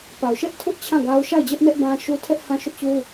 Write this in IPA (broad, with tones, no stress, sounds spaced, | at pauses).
p a˨ ʊ̯ ʃ ɛ˦ ʔ tʰ ʊ˦ ʔ t͡ɕʰ ã˦˨ ɡ a˦ ʊ̯ ʃ a˦˨ ɪ̯ d͡ʑ ɛ˦ ʔ n ɛ˦ ʔ b ã˦ ʃ u˦ tʰ ɛ˦ ʔ h ã˦ ʃ ʊ˦ ʔ t͡ɕ u˦